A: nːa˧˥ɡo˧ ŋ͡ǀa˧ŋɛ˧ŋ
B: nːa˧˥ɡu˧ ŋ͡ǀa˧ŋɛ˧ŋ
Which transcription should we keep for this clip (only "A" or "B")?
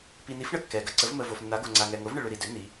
A